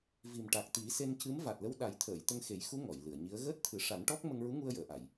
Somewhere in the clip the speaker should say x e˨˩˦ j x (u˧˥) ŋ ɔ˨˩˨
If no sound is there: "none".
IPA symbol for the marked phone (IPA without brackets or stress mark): u˧˥